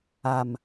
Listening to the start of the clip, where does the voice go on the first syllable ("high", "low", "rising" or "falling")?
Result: low